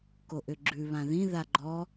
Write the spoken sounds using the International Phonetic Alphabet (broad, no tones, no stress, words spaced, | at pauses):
koʔʏɡ͡ǁʉ βãðĩ ðaɡ͡ǃɔ